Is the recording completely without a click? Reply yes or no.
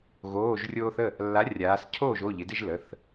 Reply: yes